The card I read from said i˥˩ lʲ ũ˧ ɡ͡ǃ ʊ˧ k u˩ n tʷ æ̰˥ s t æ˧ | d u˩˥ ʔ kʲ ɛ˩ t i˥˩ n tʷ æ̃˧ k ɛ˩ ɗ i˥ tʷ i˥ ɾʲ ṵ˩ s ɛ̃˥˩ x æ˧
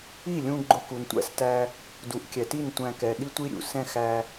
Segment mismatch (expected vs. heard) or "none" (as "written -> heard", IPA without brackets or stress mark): none